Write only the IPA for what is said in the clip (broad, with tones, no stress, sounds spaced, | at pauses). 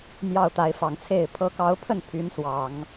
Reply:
m j ɑ˥˩ ʊ̯ t̪ a˧˥ ɪ̯ f ɑ˨˩ ŋ t͡sʰ e˥˩ ɪ̯ pʰ ɤ˧˥ k ɑ˧˥ ʊ̯ pʰ ə˥˩ n pʰ y˧˥ n s w ɑ˨˩˦ ŋ